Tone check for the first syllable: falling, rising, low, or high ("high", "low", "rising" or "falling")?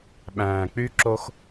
low